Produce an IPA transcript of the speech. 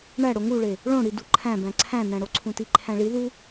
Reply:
ɳ æ ɽ o ŋ u ɭ e | ɭ õ ɽ i d u ǃʰ æ̃ b æ̃ ǀʰ æ̃ n æ̃ ɽ o ǀʰ ũ t i ǃʰ æ̃ ɭ i ð u

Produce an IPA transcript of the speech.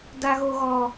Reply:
d a˦ ɣ o˦ ɣ ɔ˦

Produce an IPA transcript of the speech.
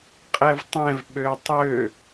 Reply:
qʼ ɛ v tˤ ɛ̃ v ɓ ø tˤ ø

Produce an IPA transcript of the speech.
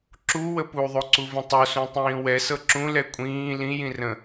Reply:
ǁ u w ə p u ðˤ o ǀ u v ə̃ tˤ o s ũ tˤ ĩː w ɛ s ɤ ǁ ũ l ɛ kʷʼ ĩː l ĩ j ĩ r ə̃

